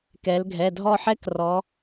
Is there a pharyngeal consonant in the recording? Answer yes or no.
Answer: yes